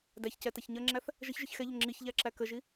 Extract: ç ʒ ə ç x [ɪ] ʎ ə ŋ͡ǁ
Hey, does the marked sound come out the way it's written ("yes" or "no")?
no